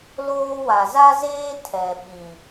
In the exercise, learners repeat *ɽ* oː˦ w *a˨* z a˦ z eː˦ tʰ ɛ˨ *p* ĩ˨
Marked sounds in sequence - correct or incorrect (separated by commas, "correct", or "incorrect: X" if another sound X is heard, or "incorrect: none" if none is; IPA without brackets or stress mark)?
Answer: incorrect: l, correct, incorrect: ɓ